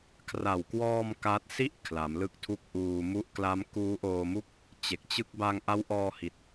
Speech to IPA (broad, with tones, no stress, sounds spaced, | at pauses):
kʰ r a˨˩ w k w ɔː˧ m k a˦˥ t̚ s i˥˩ ʔ kʰ l a˩˦ m l ɯ˦˥ k̚ tʰ u˦˥ k̚ ʔ uː˧ m u˦˥ ʔ k l a˦˥ m k uː˦˥ ʔ oː˧ m u˥˩ k̚ | t͡ɕ e˨˩ k̚ t͡ɕ ɯ˥˩ k̚ b a˧ ŋ ʔ a˦˥ w ʔ ɔː˧ h i˨˩ t̚